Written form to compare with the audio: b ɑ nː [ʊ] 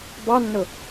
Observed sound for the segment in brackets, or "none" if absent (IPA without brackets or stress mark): ʊ